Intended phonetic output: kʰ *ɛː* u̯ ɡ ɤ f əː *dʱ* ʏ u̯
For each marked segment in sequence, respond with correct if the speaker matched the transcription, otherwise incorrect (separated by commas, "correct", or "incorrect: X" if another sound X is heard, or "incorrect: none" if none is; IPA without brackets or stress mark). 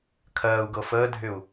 incorrect: ɜː, correct